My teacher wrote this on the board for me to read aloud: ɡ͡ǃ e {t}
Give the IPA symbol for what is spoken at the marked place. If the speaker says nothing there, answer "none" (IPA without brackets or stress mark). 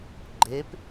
p